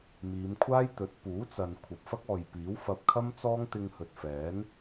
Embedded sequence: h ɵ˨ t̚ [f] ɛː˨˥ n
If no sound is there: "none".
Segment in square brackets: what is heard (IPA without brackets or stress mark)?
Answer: f